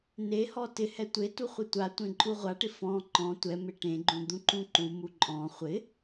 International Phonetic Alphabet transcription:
n e h ɔ t ɪ h ɛ tʷ e t u χʷ ɪ tʷ a tʷ ẽ ǃʼ u ʁʷ a ʈ ɪ f ɔ̃ ǃ ɔ̃ tʷ ɛ m ɪ ʈ ẽ ɡ͡ǃ ũ d̪ ũ ǃ ũ ǃ u m u ǃʼ ɔ̃ χʷ ɪ

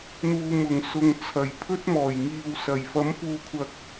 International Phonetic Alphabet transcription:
n̪ uː˨ m ʊ˨˩ ŋ s ʊ˨ ŋ t͡sʰ ɐ˨˩ j pʰ ɵ˥ t̚ m ɔː˨˩ j ŋ iː˨ w s ɐ˨˩ j f ɐ˨˥ m f uː˨ kʷʰ ɐ˨ k̚

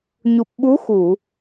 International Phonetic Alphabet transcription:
ɲ u˨˩ p̚ ɓ u˧˥ x u˨˩˨

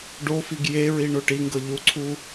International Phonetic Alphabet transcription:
ɖ o f i ɡ j e ɹ i ɳ o ʈ i ŋ ɡ ɤ ʎ u ǀʰ u

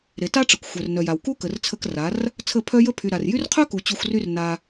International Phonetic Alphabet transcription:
ɾ e˨ t a˦ ʈ͡ʂ ə˨ kʷ xʷ œ˨ r n œ˨ j a˨ w k u˦ k ə˨ r t͡sʰ ə˧ k r a˨˦ r | t͡sʰ ə˦˨ pʰ œ˦ j ə˦ pʰ y˨ ɾ a˨ r j y˦ r qʰ œ˦ k u˨ t͡ɕ u˧ xʷ r y˦ r n a˧

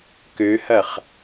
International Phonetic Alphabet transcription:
k ø h ɐ χ

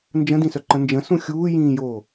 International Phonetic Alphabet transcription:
n d͡ʒ ə̃ d ĩ s œ ǃ ə̃ n d͡ʒ ə̃ s ũ xʲ uː j ĩː j oː

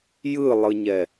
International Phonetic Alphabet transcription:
j ɯ lˠ ɯ ɲ ɛ

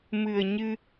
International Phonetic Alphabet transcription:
m ɨ˨˩ ə̯ ɲ ɨ˧

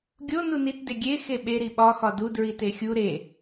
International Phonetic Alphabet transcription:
ɡʲ o n u n i t d e ɡʲ e x e ɓ e ɾ i ɓ ɒ x ɒ d u d ɹ i t e xʲ u ɾ e

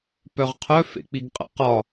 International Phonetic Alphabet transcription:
p œ ʁ qʰ œ f ḛ k͡p i ɡ qʼ ə̰ q ɒ

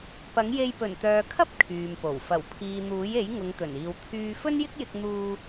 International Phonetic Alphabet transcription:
p ɐ˨˥ ŋ j e˧ j p ɵ˨˩ n t̪ œː˨ kʰ ɐ˥ p̚ kʰ yː˨ m p o˨˩ w f ɐ˨˩ w pʰ iː˨ n̪ uː˨˥ j e˨˥ j ŋ ʊ˨˧ ŋ t̪ ɵ˨˩ n iː˨ w t̪ʰ yː˥ f ɵ˥ n j ɪ˥ k̚ j ɪ˧ k̚ n̪ uː˧

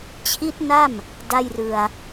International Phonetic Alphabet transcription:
t͡ɕʰ i˦˥ t̚ n a˥˩ m | d a˥˩ j r ɯ˧ a̯

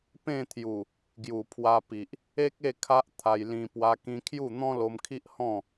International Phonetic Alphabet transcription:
p ẽ˥˧ t̪ʰ j u˨˩ | ɡ j u˨˩ pʰ w a˧ p i˨ ʔ | e˦ k̚ e˥˧ kʰ a˦ ʔ t̪ʰ a˧ j l ĩ˧ p w a˧ k ĩ˧ kʰ j u˥˧ n̪ ɔ̃˦ l o˧ m kʰ i˦ ʔ h ɔ̃˥˧

